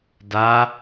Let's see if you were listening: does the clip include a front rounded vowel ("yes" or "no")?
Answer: no